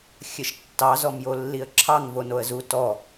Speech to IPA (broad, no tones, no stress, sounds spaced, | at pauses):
xʲ ɘ ʃ tː ɑ z ɔ m j o lː i ə̯ ǁʰ ɑ ŋ v o n o ə̯ z u t ɔ